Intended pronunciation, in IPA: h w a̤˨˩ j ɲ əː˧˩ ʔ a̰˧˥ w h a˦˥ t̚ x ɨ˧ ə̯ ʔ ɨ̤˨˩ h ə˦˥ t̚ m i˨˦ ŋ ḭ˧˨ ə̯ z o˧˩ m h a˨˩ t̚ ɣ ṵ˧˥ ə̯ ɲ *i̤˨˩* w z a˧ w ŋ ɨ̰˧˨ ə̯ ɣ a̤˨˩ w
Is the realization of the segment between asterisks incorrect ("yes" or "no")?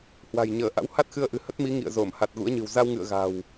yes